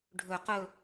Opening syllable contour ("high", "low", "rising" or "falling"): low